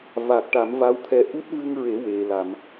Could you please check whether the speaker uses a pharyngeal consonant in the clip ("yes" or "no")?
no